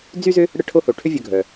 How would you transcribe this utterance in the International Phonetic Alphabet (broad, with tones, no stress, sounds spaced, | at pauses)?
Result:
d͡z y˥ z ʏ˥ | ɽ ə˦ ʈʰ o˦ h o˩ ʈʰ ʏ˦ vʲ œ˨ ɡʱ œ˩